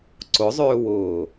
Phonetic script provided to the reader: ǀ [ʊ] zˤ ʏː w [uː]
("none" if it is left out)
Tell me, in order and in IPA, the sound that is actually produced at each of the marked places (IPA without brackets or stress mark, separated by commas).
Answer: ʊ, ʊː